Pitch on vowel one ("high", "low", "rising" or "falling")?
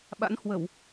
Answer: rising